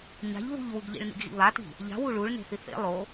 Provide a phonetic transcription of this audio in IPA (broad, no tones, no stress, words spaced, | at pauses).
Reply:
ɲa̤ʎβṳʎwuɡʎḭɭ nḭɡɣḭβati̤ | ʎa̤wu ɭuɭ ne̤θiθḛ lˠo